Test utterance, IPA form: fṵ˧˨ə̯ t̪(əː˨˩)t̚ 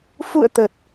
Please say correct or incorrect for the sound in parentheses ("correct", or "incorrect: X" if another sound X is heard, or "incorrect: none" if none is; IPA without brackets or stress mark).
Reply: correct